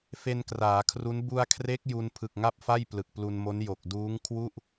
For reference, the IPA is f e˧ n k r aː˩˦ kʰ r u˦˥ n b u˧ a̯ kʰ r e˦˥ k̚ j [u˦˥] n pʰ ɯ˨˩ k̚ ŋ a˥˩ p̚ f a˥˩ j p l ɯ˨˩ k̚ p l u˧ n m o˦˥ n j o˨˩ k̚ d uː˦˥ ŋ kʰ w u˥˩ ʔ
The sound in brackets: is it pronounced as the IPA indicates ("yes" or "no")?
no